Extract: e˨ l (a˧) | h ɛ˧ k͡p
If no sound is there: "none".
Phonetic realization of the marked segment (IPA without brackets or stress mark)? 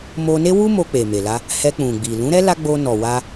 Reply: a˧